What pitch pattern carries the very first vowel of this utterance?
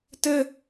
high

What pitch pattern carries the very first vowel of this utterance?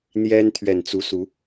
high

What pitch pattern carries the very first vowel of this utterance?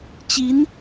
rising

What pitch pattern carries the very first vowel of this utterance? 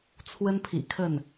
high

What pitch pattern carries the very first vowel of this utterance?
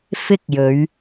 high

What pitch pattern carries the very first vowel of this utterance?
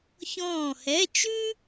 falling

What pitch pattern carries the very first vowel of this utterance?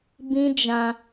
high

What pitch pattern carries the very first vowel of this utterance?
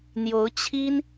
rising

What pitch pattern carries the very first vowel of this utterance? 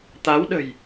rising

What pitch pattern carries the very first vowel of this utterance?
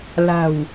low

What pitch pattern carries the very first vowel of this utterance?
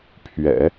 low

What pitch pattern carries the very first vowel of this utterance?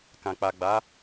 low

